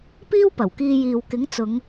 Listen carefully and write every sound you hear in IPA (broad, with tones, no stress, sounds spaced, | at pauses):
p iː˥ w p ɐ˨˩ w k iː˧ j iː˨ w k ɪ˨˥ ŋ t͡s ʊ˨˧ ŋ